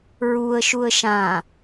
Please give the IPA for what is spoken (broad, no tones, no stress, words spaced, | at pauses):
ɹuə̯ ʃuə̯ʃã